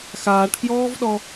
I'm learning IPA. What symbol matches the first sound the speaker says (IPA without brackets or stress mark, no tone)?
x